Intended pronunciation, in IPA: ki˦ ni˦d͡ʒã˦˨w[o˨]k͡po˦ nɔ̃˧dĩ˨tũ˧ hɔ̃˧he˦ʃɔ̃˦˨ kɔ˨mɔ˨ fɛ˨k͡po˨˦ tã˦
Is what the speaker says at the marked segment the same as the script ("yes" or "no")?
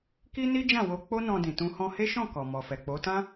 no